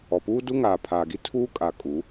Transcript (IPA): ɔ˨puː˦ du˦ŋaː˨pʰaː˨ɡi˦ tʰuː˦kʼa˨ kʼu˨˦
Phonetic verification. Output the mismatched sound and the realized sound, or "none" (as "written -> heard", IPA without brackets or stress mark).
none